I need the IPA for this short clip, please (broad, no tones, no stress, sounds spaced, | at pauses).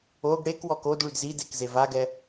o ɡ ɽ e k w ɔ k o d ɭ y d z i d e k z e v a ɡ ɛ